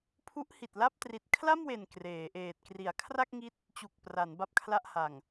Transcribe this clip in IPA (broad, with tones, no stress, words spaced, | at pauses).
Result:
pʰu˦˥ʔhi˨˩t̚la˥˩p̚ tri˨˩t̚kʰla˥˩mwe˨˩n kreː˩˦ʔeː˨˩t̚ kri˩˦a̯kʰra˥˩k̚ŋi˦˥t̚ | t͡ɕu˨˩k̚ pra˩˦n ba˥˩p̚kʰla˥˩ʔha˨˩ŋ